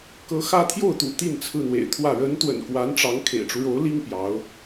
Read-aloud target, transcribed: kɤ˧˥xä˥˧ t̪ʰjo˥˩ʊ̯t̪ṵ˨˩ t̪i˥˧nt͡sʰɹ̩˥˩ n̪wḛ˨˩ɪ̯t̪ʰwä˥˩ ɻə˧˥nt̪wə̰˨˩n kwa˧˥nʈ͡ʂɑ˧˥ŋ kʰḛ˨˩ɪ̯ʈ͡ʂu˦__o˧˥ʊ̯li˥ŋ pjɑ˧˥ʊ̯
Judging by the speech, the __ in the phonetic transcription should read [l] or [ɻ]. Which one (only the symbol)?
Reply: ɻ